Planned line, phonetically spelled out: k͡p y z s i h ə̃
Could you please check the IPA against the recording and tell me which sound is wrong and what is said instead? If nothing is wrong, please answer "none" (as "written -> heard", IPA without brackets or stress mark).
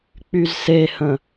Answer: i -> e